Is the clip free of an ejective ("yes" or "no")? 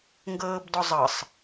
yes